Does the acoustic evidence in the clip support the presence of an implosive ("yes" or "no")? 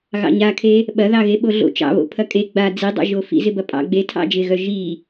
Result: yes